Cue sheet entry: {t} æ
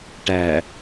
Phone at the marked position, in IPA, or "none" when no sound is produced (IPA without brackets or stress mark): ʈ